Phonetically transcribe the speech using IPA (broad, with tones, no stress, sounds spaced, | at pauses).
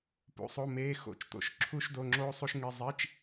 p ṵ˧˥˧ sˤ o˧˥˧ m eː˧˥˧ x o̰˧˥˧ t͡ʃ t̪ o̰˧˥˧ ʃ ǁʰ u˥ ʃ d o˧˥˧ ŋ͡ǁ oː˥ sˤ u˥ ʃ ŋ i˧˥˧ zˤ i˧˥˧ t͡ʃ